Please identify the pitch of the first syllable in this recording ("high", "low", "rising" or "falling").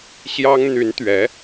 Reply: high